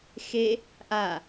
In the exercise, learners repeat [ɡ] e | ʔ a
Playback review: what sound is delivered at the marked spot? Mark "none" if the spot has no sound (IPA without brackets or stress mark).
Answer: x